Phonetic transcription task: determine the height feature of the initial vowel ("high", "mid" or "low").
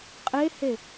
mid